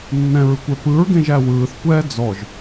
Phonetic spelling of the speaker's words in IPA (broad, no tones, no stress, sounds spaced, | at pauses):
nː ɛ̃ ɹ ɯ kʷ ɛ p ɯ ɹ ɡ ẽ ʒ æ w ɯː θ kʷ ɛː d͡z ɔ ʒ